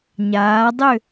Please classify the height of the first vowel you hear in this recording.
low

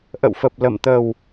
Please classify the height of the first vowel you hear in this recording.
mid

